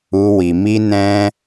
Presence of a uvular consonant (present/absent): absent